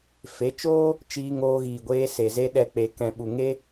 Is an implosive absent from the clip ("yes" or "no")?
no